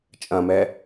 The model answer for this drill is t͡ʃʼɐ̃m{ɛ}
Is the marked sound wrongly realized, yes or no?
no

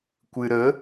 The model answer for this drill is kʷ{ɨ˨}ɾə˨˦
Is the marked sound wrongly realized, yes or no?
no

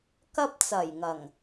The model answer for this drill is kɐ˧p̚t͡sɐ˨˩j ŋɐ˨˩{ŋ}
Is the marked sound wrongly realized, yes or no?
no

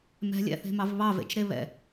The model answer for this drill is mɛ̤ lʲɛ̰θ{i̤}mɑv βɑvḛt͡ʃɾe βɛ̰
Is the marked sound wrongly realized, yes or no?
yes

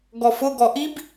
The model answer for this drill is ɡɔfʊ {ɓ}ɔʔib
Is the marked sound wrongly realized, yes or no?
yes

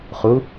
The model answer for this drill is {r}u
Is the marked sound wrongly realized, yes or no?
yes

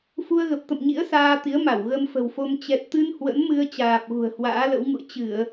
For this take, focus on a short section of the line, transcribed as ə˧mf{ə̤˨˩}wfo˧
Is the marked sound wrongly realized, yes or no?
no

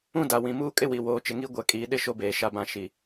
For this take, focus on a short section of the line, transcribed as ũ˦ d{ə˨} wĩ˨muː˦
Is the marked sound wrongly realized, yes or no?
yes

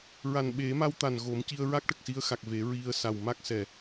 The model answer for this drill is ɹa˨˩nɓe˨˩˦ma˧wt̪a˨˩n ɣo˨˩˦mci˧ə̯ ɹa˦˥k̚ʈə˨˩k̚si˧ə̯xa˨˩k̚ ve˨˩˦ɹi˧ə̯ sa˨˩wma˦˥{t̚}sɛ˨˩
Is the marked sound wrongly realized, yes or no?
yes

